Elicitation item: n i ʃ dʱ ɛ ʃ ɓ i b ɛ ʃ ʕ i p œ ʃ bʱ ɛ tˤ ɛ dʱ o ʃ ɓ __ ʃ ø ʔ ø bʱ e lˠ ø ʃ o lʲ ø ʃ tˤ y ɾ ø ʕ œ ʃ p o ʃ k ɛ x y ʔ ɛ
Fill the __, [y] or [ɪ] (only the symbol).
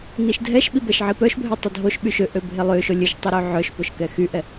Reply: y